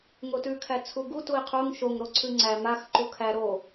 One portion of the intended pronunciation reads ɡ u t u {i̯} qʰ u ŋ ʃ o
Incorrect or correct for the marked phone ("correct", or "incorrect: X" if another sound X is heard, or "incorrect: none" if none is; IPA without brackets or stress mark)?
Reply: correct